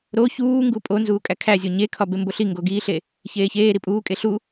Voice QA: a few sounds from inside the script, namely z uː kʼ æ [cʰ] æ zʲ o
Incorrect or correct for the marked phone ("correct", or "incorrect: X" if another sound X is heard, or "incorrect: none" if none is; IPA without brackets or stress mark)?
incorrect: kʰ